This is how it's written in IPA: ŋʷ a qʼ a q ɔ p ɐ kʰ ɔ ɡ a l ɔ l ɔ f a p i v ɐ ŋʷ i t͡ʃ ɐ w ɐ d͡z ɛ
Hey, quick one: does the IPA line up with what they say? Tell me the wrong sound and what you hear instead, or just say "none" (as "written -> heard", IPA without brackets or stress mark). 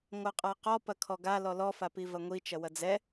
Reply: none